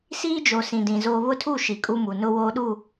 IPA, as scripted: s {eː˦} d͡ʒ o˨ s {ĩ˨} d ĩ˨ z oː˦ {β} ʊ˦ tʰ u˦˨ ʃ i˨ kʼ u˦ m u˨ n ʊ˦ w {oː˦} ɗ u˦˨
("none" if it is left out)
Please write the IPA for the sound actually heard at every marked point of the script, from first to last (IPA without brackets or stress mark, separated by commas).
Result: iː˦, ĩ˨, β, oː˦